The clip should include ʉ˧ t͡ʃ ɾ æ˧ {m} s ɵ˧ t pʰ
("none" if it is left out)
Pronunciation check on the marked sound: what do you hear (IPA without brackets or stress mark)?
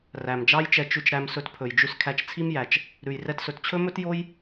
m